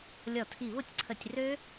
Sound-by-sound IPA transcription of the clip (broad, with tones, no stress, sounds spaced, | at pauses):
lʲ ɔ˧˩ tʰ i˧˩ β ʊ˥˨ tʲ ǀʰ ə˧˩ tʲ r ø˦˥